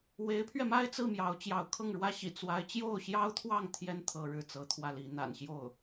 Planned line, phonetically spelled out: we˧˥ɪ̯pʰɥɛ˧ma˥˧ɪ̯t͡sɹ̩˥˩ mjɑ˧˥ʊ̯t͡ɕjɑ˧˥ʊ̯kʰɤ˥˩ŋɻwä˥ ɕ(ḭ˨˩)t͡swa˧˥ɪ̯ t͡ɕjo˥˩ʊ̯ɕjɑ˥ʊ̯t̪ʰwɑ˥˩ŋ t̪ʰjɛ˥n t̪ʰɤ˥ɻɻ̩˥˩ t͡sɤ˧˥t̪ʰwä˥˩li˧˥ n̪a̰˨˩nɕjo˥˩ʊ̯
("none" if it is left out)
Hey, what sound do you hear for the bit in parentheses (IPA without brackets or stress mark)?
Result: ḭ˨˩